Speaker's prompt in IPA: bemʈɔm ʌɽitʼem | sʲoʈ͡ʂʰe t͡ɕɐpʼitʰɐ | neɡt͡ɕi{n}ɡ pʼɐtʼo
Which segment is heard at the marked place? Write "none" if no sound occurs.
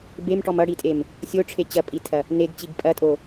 none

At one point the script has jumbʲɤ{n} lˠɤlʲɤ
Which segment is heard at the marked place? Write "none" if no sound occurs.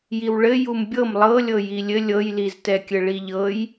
m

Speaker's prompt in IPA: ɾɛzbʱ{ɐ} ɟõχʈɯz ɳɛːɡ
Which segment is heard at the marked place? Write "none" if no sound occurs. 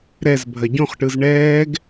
ɐ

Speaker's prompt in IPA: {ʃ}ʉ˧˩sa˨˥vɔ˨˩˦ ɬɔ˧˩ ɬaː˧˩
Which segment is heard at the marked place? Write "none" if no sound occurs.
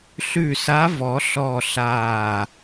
ɬ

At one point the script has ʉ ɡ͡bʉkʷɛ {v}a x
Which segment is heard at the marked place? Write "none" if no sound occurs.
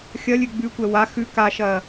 w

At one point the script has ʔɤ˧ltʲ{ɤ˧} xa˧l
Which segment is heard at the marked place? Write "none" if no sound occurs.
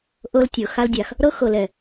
ɤ˨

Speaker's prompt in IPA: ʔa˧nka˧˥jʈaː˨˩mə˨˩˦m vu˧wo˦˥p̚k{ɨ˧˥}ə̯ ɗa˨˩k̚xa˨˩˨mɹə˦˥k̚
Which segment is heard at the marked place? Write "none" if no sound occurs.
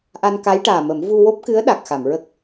ɨ˧˥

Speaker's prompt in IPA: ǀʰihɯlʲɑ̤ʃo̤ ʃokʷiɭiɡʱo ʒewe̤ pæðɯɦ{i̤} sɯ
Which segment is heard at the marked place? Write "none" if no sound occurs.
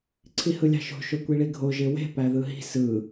i̤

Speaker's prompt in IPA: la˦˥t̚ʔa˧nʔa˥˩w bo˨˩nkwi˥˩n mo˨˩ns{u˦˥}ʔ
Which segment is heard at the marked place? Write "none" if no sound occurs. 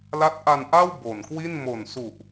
u˨˩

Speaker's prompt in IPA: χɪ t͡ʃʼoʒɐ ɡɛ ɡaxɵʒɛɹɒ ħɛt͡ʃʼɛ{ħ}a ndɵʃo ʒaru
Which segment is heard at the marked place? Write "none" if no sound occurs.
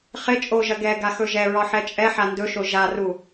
ħ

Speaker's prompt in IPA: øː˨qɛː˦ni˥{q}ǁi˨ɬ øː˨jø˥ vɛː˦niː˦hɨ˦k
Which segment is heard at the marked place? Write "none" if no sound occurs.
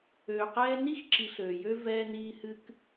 x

